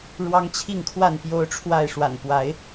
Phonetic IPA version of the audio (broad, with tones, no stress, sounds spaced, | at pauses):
ɻ w ɑ˦ ŋ t͡ɕʰ i˥˨ ŋ kʰ w a˥˨ n p j o˦ ʊ̯ ʈ͡ʂʰ w a˥˨ ɪ̯ ʂ w a̰˨˩ n p w a˨˦ ɪ̯